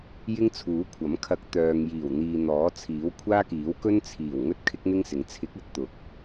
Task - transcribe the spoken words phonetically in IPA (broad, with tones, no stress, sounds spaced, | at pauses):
j ɪ˥ ŋ t͡sʰ uː˨˥ kʷʰ ɐ˨˥ m kʰ ɐ˨˥ k̚ t̪ œː˨ ŋ j iː˨˩ w n̪ iː˨ n̪ ɔː˨˥ t͡sʰ iː˨˥ w kʷʰ aː˥ k iː˨˥ w k ɵ˥ n t͡sʰ iː˨˩ w ŋ ɵ˥ t̚ kʰ ɪ˥ k̚ n̪ ɪ˥ ŋ s ɪ˨˥ ŋ t͡sʰ ɪ˨˥ k̚ ɐ˥ t̚ t̪ ʊ˨˥ k̚